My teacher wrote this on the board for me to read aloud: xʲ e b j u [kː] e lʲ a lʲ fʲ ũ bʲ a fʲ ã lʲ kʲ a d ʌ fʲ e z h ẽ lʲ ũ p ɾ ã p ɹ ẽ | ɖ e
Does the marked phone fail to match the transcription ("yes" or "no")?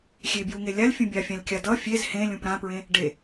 yes